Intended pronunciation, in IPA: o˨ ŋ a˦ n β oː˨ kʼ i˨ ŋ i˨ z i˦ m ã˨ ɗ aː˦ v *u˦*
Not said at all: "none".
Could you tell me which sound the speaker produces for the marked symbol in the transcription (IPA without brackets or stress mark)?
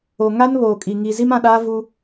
u˦